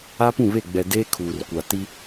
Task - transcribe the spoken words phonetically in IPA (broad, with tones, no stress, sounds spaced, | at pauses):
a˦ p ũ˦˨ β e˦˨ ɡ͡b ɛ˨ d eː˦ kʰ uː˨ r kʷ a˨ t i˦